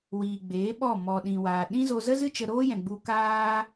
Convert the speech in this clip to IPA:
wiː˨ɡ͡beː˨˦ ɓɔ˦˨ mɔ˨ɗĩ˨waː˨ɗĩ˦ zo˧zə˦zɨ˦t͡ʃə˧ ɾoː˦jɛ̃˨ɡ͡bu˧ kaː˦

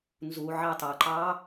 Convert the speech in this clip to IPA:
nzu ʕɑtɑǃɑ

